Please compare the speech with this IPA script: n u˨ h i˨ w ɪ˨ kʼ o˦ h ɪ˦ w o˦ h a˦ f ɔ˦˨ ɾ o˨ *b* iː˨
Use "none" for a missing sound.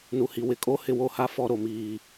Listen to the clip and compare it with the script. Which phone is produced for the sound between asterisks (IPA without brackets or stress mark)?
m